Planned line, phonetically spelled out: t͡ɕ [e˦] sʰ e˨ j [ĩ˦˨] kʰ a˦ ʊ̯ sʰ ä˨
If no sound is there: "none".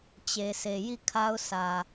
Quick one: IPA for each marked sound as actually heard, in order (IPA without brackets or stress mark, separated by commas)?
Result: e˨, i˦˨